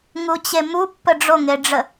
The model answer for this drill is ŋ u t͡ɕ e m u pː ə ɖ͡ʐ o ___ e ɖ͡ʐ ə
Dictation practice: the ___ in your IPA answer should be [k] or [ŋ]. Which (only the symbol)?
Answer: ŋ